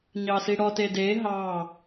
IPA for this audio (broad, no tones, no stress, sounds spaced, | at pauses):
ɲ ɑ s i ɽ ɔ t e d e ɦ ɑ